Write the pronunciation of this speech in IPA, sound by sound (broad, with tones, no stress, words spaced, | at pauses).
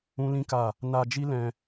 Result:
ũ˦lĩ˦ka˦˨ | na˧d͡ʒi˦lɛ̃˧